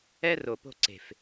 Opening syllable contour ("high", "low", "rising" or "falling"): high